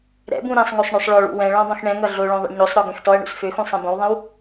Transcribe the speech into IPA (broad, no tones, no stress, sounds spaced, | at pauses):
ɾ ɛ̰ b ũ ɾ ĩ sˤ ŋ o sˤ ɳ ø sˤ ɭ ɔ ɭ ṵ w ɛ̃ ɭ ɔ̃ dˤ ũ x ɳ ɛ̃ ŋ ʌ ɮ o ɭ õ ðˤ ɛ̰ ɳ ɲ o sˤ ɾ ɔ ɡ ɛ̃ x t ɔ ɐ̯ ɳ ṵ s f ø x ũ sˤ ĩ b õ w ðˤ ɛ̃ w